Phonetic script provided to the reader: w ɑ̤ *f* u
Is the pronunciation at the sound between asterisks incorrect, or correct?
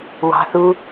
incorrect